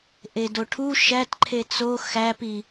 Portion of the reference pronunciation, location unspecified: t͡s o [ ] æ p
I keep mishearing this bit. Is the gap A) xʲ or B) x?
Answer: B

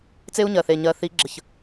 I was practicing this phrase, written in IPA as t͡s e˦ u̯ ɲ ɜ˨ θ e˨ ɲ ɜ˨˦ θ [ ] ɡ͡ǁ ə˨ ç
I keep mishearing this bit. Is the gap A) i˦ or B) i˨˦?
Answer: B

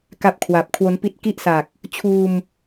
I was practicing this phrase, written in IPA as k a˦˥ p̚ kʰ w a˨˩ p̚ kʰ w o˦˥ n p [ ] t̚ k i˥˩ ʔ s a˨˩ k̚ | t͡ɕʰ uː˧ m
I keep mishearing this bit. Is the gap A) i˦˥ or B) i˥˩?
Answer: A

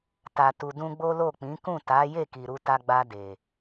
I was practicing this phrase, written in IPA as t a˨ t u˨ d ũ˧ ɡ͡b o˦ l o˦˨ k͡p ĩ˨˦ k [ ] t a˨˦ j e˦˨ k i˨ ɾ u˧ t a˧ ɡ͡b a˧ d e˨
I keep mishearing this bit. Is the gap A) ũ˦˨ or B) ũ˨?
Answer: A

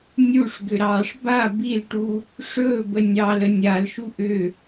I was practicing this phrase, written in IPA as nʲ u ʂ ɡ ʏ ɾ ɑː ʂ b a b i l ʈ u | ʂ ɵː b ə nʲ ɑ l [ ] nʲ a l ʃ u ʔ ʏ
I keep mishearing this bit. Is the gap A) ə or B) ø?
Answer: A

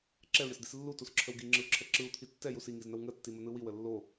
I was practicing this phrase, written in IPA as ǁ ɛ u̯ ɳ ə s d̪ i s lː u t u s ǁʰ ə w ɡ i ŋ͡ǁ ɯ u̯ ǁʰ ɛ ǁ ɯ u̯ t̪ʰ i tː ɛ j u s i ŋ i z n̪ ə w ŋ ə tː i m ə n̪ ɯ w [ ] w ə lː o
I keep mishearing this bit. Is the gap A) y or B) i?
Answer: B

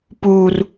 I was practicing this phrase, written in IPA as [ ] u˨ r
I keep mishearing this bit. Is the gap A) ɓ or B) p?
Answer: B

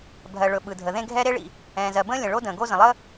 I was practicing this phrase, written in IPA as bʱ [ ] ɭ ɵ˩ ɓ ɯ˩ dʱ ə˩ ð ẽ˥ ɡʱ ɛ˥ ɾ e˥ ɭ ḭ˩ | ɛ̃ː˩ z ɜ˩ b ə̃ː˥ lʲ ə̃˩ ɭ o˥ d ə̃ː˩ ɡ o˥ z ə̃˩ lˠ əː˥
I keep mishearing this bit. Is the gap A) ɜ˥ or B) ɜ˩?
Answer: B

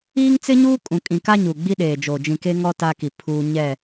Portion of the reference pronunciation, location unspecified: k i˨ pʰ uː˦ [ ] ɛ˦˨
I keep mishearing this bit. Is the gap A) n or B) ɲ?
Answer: B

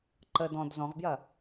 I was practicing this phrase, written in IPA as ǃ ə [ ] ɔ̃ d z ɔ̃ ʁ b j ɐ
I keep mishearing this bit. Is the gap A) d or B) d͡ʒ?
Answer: A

